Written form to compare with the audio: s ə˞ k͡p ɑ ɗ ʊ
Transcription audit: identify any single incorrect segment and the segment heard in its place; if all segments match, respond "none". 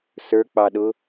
none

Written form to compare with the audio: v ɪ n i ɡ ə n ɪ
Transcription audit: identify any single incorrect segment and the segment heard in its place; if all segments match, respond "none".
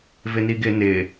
ə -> ɪ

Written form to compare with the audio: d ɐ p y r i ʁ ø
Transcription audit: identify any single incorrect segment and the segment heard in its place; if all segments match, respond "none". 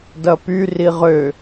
none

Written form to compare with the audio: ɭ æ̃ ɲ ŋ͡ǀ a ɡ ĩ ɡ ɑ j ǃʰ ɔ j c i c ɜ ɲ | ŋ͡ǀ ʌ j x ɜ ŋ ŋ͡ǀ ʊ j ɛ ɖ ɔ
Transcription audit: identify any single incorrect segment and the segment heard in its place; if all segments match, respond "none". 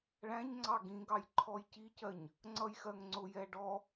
a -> ɑ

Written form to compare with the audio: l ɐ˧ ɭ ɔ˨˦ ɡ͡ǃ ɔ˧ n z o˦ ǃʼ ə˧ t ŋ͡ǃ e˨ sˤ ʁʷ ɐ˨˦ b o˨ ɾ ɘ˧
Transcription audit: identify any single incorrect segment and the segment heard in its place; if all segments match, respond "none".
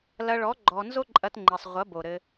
ə˧ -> ɐ˧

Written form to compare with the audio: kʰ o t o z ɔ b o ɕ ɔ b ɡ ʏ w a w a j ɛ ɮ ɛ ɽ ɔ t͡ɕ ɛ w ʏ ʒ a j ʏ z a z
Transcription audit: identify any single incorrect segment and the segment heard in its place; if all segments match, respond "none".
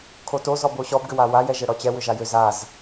ɮ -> ʒ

